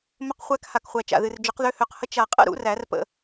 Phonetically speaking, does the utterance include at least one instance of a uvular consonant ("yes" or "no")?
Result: yes